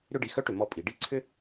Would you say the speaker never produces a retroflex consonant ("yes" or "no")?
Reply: no